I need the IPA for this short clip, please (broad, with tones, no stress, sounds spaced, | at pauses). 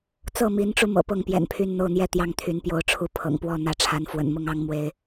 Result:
t͡s ɤ˥˨ m i˨˦ n ʈ͡ʂ u˧ m ɤ̰˨˩ p ɤ˥˨ ŋ p j ɛ̰˨˩ n pʰ y˥˨ n n̪ o˥˨ ʊ̯ n̪ j ɛ˥˨ t̪ j ɑ˥˨ ŋ t̪ʰ y˨˦ n p j o˨˦ ʊ̯ ʈ͡ʂʰ u˨˦ pʰ ɤ̰˨˩ ŋ p w ɔ˥˨ n̪ ä˨˦ ʈ͡ʂʰ a˨˦ n f w ə̰˨˩ n m ʊ˥˨ ŋ ɑ˦ ŋ m w e˨˦ ɪ̯